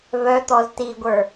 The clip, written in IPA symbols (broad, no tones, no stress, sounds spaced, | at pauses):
v œ t̪ ɔ z t i ɡʷ ə˞